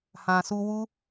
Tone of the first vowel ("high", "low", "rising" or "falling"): low